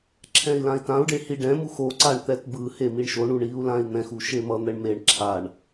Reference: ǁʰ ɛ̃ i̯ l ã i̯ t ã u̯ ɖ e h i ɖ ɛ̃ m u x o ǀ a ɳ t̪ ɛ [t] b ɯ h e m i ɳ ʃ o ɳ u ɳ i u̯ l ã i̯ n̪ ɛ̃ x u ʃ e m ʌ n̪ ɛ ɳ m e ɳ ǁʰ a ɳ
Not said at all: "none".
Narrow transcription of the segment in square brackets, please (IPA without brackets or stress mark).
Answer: t